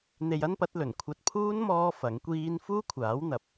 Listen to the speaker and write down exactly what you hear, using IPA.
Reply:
n̪ e˧ j ɐ˥ n p ɐ˨˥ t̚ l ɵ˨˩ n kʷʰ ɐ˧ t̚ pʰ uː˥ n m ɔː˥ f ɐ˨˥ ŋ kʷ iː˥ n f uː˥ kʷʰ aː˨˥ w n̪ ɐ˨˥ p̚

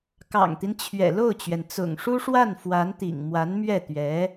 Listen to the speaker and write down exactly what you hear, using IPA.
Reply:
k ɑ̰˨˩ ŋ t̪ i˦ n t͡ɕʰ ɥ ɛ̰˨˩ l o˥˩ ʊ̯ t͡ɕ ɥ ɛ˩ n t͡s ʊ̰˨˩ ŋ ʂ u˥ ʂ w a˥˩ n f w a˧˥ n t̪ ḭ˨˩ ŋ m w a˧˥ n m ɥ ɛ˥˩ t̪ ɥ ɛ˧˥

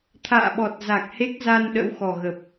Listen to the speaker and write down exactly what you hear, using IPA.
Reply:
t̪ʰ a̰ː˧˨ ɓ ɔ˨˩ t̚ z a˨˩ k̚ h e˦˥ k̚ z a˧ n ɗ ə̰˧˥ w x ɔ˨˩ ɣ ə˨˩ p̚

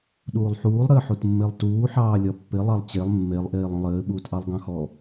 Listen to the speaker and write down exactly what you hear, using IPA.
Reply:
ɗ uː lˠ ħ uː lˠ ɾ ɘː ħ u t mː e lˠ t uː ħ ɑː lʲ ɒ pː ɪ lˠ ɑ lˠ t͡ɕ e lˠ mː e lˠ ʔ eː lˠ ũ lˠ ɘː ɓ uː t ʔ ɑ lˠ ɡ ɑ̃ x ɔ

